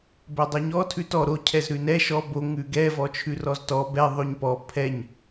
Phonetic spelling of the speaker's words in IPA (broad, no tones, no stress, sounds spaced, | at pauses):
b ɛ dˤ o ɲ ɔ tʰ ʉ t ɔ ɾ o cʰ ɛ z ɾ ʉ n ɛ ʃ ɔ b o ŋ ʉ ɡ ɛ v ɔ t͡ʃʰ ʉ r ɔ z t ɔ b ɛ ðˤ ʉ ɲ p ɔ pʰ ɛ ɲ